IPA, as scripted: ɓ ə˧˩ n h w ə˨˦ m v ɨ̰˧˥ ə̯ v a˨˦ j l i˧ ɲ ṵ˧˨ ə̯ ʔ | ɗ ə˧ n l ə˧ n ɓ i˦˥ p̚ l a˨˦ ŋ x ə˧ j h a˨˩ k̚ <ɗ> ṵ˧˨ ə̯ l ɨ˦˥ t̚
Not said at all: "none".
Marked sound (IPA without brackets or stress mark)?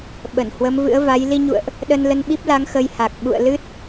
ɓ